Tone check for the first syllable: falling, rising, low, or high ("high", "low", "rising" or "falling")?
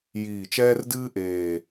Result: low